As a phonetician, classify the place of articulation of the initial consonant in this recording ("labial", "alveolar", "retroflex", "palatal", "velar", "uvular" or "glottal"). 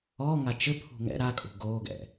velar